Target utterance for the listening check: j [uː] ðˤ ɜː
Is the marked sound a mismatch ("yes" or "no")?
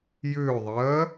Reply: yes